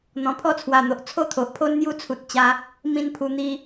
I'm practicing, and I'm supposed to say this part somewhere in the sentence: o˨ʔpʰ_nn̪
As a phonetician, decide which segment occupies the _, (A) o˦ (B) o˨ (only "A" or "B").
A